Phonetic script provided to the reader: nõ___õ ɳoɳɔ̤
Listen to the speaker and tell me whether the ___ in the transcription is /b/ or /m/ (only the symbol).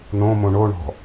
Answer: m